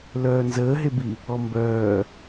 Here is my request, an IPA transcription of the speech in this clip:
l œː n z əː ɦ e b i | ɔ m b œː

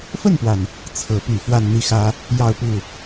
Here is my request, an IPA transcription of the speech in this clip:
f ə˥˩ n p w a˩ n | t͡sʰ ɤ˧˥ p y˨˩ f w a˥˧ n n̪ i˥˩ x ä˥ | j ɑ˥˧ ʊ̯ p u˥˩

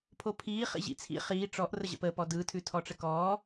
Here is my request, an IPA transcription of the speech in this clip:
pʰ o pʰ iː χ ḭ ʑ ḭ t͡sʰ ḭ χ iː ʈ͡ʂ ɔ ʔ r ə ʑ ə̰ p əː p ɔ d ɯː tʰ ʉ tʰ ɔ ʈ͡ʂ ə k ɔː

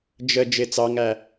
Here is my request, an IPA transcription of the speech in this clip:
d͡ʒ ə d͡ʒ ɪ t͡s ɑ ŋ æ

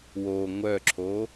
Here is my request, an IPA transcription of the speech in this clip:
w o ŋʷ œ ǁʰ o

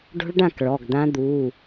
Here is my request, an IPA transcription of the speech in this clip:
ɖ o̤˦˥ ɭ ɖ ã˥˨ k ɭ ɔ˩˧˩ ɡ d̪ ã˦˥ d̪ uː˩˧˩

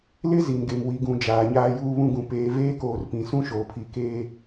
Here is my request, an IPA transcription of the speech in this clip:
l ɪ˦ z i˨ n ɡ e˨ m w i˨ ɡ ũ˨ d͡ʒ aː˨ ɲ aː˦ j uː˦ β ũ˦ ɡ ũ˨ p eː˨ v eː˦ k oː˨ r p ĩ˨ s ũ˦ ʃ oː˨ pʰ i˨ k eː˦

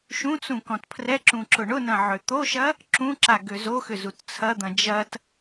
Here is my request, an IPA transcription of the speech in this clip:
ʃ ũ t͡s ũ k ɔ̃ t pʰ r ɛ ǁ ũ ǁ ʊ ɳ ʊ n ɐ̃ ʕ ø t̪ o ʃ ɐ | ǁ ũ ǁ a ɡ ø z o x ʏ z u t t͡sʰ ɐ d̪ ɐ̃ d͡ʒ ɐ t

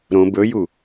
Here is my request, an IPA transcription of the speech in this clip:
ɾ õ b ɵ j u

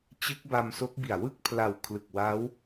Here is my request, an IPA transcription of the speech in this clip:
t͡ɕ ɯ˦˥ k̚ b a˧ m s o˦˥ k̚ b i˨˩ a̯ w ɯ˥˩ k̚ pʰ l a˨˩ w kʰ l ɯ˨˩ k̚ w a˦˥ w

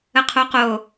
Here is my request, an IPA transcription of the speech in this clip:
ə qʰ o q o

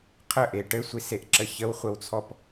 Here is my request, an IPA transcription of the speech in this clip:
qʰ ə ʔ e ʈ ɘ sʷ i s e ʔ ǁ ə ç ə w χʷ ə w t͡sʰ ɔ p

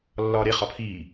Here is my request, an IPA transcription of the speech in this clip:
lː ɒː ɾ e χ ɒ pʰ iː

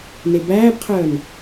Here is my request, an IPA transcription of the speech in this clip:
n e b æː b qʰ œː n

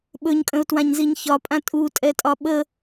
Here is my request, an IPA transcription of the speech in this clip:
ɓ ɵ ɲ kʼ ə̃ ʊ̯ t w ã ɲ z i ɲ ç ɒ pʼ ã tʼ u tʼ ɛ tʼ ɒ ɓ ə

